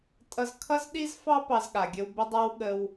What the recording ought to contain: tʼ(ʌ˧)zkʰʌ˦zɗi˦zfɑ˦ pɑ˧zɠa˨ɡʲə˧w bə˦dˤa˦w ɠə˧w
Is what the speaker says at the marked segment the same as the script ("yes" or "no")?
yes